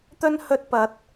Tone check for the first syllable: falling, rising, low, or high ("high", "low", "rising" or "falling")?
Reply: high